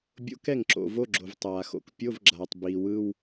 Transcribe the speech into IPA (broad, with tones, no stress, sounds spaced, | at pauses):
bʲ o̰˧˥˧ k ɛ˥˩ ŋ ǁ o̰˩ v o˧˥˧ ɡ͡ǁ o˩ v tˤ aː˩ x o̰˩ k pʲ o˧˥˧ v ɡ͡ǁ aː˩ tˤ b iː˩ w ɯ˧˥˧ w